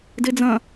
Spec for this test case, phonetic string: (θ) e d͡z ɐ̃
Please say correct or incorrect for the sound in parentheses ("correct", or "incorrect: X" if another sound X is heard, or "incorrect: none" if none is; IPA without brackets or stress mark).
incorrect: d